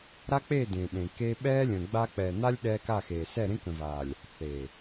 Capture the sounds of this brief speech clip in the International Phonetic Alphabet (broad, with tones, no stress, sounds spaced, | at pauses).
ɾ a˦ k͡p e˦˨ d ẽ˨ ɗ ẽ˨ k e˦ ɓ ɛː˦ lʲ ə̃ː˨ ɡ͡b a˦ k͡p ɛː˨ n̪ a˦ lʲ ɗ ɛː˦ k a˦˨ x eː˨ s ɛ˦˨ ɾ ẽ˦ k ə̃˨ v aː˨ lʲ | θ eː˨